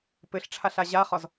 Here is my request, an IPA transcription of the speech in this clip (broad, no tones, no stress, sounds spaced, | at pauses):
p ɘ ɬ ʈ͡ʂʰ a ɬ a ʑ a χ ɒ z